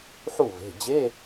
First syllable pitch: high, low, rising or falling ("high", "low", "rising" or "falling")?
falling